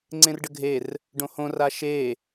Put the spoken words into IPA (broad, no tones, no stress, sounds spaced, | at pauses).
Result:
ŋ͡ǀ ẽ r ɖ ə ɡʱ e r | ɖ õ h õ r a ʃ e